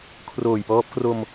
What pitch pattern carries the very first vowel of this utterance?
low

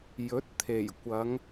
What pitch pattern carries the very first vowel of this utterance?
rising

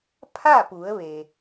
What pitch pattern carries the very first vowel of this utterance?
falling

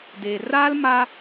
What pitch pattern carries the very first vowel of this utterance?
low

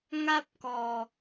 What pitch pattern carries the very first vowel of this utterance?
high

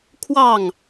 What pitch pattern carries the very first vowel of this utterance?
falling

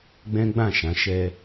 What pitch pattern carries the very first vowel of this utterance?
high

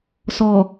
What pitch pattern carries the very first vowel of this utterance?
low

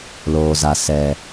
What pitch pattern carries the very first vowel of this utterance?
low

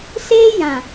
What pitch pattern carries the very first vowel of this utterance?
high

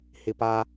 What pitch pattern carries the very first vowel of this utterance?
low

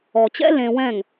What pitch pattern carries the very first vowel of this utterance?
low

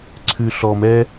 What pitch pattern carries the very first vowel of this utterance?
low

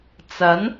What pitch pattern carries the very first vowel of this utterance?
rising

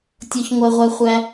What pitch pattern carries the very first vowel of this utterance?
high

